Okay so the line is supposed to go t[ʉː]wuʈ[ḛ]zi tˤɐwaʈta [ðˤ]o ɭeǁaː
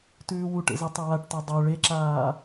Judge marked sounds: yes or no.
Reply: yes, yes, no

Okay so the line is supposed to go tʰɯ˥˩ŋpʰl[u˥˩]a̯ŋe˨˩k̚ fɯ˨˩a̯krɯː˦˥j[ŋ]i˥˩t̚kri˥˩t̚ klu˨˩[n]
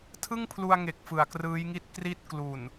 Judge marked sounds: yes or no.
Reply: no, yes, yes

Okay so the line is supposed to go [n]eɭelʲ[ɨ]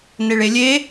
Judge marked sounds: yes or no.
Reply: yes, no

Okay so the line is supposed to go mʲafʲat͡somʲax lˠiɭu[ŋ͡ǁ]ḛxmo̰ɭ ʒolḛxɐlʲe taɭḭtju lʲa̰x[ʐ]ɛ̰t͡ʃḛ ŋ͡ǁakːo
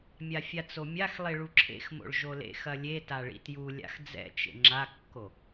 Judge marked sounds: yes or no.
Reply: no, no

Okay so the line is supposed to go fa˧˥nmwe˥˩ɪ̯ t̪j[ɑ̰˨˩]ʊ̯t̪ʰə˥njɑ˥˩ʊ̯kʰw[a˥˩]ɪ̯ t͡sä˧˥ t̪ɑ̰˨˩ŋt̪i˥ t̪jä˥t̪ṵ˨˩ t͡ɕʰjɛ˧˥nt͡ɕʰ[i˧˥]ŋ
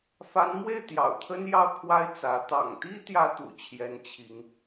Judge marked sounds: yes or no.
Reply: yes, no, yes

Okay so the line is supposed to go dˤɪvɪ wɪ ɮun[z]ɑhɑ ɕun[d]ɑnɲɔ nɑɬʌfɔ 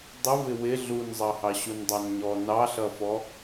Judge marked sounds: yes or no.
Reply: no, no

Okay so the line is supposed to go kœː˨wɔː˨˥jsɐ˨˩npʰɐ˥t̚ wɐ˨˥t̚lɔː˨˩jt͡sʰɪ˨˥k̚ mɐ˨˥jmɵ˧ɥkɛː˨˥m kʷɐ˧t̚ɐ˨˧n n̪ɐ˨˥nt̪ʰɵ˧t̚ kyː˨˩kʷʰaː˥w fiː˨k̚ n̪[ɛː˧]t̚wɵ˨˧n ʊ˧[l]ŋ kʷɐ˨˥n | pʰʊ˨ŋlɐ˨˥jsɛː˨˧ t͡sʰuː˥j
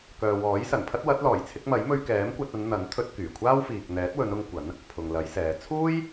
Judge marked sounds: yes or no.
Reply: no, no

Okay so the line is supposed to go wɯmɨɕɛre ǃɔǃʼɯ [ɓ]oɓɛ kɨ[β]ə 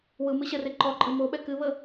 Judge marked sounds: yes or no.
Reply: no, yes

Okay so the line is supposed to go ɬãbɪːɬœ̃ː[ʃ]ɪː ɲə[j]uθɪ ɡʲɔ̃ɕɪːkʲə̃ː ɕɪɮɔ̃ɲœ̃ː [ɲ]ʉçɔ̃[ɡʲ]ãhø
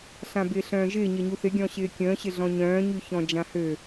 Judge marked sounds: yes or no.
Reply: no, no, yes, no

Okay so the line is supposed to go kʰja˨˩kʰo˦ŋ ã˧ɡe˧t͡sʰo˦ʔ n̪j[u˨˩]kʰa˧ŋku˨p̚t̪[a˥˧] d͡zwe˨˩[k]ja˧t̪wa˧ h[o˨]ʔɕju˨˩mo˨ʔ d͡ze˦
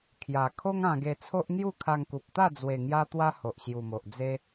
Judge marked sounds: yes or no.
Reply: no, yes, no, yes

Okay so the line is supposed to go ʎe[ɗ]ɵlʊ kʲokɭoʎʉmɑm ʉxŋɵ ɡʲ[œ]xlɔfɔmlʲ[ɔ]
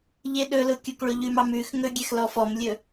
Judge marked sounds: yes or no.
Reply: yes, no, no

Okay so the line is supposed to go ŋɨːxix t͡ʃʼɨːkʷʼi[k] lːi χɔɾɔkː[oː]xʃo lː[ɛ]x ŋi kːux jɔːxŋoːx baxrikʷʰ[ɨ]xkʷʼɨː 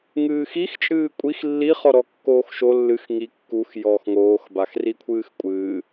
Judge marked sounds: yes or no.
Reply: no, yes, no, no

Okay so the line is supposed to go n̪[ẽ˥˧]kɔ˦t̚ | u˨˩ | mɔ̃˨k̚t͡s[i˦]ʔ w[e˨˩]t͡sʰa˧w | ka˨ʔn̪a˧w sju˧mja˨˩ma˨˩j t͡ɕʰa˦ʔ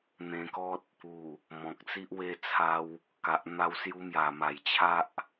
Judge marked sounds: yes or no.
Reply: no, yes, no

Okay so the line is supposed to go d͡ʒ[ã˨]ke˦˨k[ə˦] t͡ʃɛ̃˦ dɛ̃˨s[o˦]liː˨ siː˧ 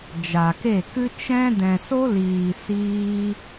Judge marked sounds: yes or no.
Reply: no, no, yes

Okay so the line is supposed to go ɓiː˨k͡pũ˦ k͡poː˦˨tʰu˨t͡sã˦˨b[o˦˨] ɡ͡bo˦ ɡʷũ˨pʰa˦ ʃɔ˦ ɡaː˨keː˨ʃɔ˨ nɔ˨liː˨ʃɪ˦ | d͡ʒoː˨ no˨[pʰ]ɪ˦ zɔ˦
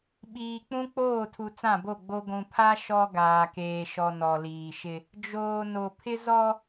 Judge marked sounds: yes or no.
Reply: yes, yes

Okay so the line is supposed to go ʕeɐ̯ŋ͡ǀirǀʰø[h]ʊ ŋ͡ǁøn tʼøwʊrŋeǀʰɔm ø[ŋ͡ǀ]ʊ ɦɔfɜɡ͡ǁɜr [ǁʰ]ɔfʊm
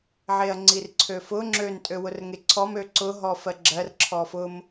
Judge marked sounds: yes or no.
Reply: no, no, yes

